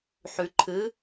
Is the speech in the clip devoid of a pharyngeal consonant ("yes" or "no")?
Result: no